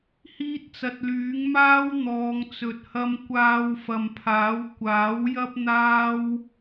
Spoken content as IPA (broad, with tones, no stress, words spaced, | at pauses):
hiː˥t̚t͡sɐ˧t̚ lyː˨˥ŋmaː˥wn̪ɔː˨˧ŋ t͡sɵ˨t̚hɐ˧m kʷaː˧wfɐ˨mpʰaː˨˥w kʷaː˨˥w jɐ˥p̚n̪aː˥w